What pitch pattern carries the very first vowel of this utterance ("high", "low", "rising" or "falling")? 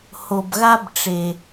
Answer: low